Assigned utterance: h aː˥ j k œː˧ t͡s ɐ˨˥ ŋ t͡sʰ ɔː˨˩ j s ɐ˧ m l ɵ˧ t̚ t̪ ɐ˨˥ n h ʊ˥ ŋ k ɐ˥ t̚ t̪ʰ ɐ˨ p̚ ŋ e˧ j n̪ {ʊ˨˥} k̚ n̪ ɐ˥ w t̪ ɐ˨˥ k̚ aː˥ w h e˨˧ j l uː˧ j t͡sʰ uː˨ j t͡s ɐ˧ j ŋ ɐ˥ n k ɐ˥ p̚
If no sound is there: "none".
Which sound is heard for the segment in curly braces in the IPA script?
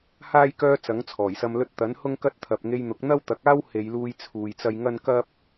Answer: ʊ˨˥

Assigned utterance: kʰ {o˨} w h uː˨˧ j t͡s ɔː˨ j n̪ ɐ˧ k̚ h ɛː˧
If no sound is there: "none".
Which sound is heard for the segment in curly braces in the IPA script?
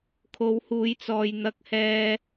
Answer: o˨˧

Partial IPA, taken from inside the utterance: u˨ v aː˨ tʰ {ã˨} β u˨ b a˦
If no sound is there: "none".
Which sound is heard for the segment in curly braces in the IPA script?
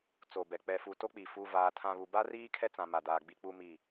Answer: ã˨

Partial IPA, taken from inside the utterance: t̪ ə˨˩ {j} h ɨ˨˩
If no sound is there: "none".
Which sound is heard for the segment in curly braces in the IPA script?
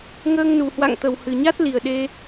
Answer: w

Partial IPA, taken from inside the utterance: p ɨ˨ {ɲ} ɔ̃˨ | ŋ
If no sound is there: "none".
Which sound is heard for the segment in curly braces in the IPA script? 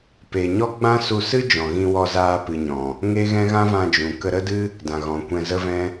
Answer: ɲ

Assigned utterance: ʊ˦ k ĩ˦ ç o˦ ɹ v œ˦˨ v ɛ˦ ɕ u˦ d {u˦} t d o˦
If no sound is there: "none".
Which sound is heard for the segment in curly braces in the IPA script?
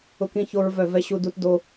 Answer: u˦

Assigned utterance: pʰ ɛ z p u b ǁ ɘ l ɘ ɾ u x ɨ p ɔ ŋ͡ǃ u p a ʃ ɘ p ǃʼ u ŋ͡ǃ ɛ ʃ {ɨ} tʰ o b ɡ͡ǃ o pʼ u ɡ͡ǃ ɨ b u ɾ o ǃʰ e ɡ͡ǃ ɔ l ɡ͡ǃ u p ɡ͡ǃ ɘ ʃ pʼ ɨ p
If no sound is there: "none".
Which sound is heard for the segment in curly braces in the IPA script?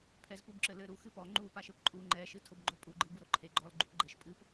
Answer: ɨ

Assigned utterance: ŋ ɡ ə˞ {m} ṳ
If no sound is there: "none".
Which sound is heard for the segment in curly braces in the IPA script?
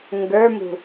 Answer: m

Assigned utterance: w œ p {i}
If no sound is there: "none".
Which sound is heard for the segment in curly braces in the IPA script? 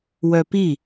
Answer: i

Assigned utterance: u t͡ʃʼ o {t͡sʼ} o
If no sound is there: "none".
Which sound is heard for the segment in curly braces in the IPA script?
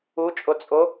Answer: t͡sʼ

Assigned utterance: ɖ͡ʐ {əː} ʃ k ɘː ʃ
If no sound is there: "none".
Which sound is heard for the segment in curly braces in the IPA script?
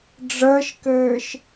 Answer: əː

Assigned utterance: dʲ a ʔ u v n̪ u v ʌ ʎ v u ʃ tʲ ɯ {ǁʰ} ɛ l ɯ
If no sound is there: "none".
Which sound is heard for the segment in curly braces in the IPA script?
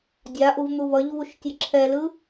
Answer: ǁʰ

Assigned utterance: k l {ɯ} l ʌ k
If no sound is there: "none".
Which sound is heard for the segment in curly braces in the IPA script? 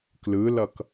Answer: ɯ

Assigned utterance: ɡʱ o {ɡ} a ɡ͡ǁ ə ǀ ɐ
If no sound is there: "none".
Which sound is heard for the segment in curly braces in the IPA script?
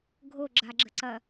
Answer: ɡ͡ǁ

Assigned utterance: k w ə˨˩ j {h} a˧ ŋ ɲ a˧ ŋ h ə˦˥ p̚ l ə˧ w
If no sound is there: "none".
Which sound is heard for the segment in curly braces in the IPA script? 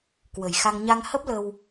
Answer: x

